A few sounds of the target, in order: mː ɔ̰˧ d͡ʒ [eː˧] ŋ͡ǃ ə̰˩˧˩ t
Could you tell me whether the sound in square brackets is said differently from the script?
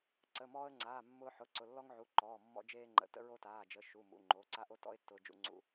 no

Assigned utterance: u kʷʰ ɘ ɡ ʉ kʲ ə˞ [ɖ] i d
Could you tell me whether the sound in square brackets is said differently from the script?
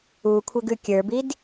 yes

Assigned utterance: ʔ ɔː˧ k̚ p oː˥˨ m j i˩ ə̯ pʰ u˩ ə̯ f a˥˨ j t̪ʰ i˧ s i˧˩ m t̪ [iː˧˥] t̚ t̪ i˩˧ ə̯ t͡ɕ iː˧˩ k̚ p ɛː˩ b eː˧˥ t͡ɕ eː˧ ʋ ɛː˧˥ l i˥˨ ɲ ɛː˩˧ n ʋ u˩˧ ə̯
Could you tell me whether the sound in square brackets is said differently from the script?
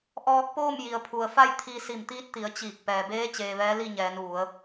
no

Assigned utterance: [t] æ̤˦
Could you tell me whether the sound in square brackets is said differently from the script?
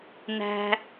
yes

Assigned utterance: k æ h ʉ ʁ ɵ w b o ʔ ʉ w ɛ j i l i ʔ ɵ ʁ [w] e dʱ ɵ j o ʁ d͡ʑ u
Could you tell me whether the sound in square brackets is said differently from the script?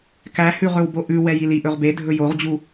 yes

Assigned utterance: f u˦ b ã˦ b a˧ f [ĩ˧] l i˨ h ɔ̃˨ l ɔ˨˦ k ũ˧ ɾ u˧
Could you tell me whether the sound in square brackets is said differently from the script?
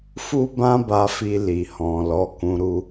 yes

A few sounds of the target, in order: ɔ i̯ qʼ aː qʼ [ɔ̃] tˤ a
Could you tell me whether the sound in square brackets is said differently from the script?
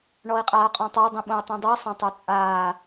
no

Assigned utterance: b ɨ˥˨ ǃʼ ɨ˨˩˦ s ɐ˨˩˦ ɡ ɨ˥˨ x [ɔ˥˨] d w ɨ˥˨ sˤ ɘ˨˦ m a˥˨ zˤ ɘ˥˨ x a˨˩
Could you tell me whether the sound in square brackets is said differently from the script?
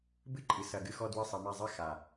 no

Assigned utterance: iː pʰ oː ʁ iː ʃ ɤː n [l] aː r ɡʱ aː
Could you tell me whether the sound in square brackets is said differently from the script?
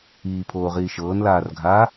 no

